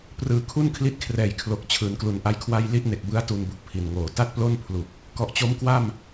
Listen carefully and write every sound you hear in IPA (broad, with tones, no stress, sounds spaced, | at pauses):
p r ɯː˨˩ kʰ u˥˩ n kʰ l i˦˥ t̚ kʰ r ɛː˨˩ j kʰ l o˨˩ k̚ t͡ɕʰ ɯː˩˦ n k l u˩˦ n ʔ a˦˥ j kʰ w a˥˩ j l i˥˩ ʔ n e˨˩ k̚ b ɯ˦˥ a̯ t u˧ n b u˨˩ k̚ pʰ i˨˩ n ŋ oː˨˩ t a˥˩ t̚ p l o˥˩ n pʰ l u˨˩ k̚ | k ɔ˨˩ ʔ t͡ɕ o˦˥ m k w a˥˩ m